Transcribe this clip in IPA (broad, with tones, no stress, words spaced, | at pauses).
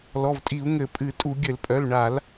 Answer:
lɔ˩˧˩vtʼi˧˩˧u̯ ŋɘ˧˩˧pʼɨ˧˩˧tʼu˧˩˧ ɡʲɘ˧˩˧lpʼœ˩˧˩lɳa˧˩˧l